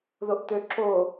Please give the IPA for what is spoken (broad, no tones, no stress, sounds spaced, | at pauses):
ð o ʔ t̪ ø ǁ o